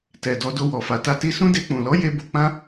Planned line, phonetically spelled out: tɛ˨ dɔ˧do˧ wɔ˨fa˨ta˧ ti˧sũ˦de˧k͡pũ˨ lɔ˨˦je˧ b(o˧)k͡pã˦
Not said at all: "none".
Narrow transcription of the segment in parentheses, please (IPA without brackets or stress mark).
o˧